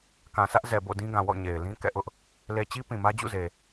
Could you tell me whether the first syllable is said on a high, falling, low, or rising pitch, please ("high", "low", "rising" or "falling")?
low